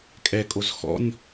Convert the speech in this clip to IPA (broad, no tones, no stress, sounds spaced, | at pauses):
kʼ ɛ kʼ o z x ɔ̰ nʲ